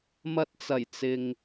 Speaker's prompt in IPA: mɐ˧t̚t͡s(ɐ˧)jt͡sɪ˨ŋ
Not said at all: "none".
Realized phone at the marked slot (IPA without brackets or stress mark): ɐ˨˩